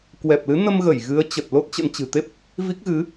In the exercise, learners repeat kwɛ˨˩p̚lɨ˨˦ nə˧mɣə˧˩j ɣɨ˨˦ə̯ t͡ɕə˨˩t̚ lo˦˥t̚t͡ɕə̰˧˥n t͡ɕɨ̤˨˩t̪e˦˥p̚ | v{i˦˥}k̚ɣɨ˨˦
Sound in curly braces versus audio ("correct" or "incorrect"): correct